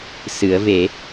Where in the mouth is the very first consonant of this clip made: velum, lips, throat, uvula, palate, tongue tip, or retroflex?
tongue tip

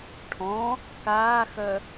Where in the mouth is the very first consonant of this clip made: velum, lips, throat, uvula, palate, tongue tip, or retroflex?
retroflex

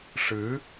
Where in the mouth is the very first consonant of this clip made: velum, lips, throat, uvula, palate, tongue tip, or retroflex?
retroflex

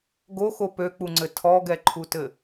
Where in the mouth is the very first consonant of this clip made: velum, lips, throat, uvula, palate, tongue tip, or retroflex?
velum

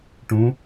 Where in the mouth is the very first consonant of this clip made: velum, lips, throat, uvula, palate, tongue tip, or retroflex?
retroflex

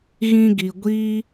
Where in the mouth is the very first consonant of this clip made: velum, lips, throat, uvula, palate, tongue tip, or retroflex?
velum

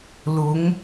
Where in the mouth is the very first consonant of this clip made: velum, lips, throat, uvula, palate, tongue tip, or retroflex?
tongue tip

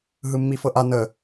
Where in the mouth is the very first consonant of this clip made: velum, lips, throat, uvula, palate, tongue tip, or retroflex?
throat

